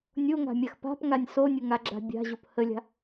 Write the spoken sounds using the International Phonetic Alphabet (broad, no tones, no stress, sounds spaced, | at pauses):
nʲ o ŋ a̤ mʲ a x p a̤ p ŋ a nʲ s o nʲ ʊ ŋ a ɡ͡ǁ a̤ bʲ a̤ ʑ o p h ə lʲ a̤